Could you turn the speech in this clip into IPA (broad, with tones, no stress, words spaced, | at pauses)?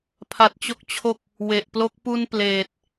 pʰa˦˥t̚t͡ɕo˥˩k̚t͡ɕʰo˥˩k̚ | we˨˩ʔplo˦˥k̚ pu˧n pleː˨˩t̚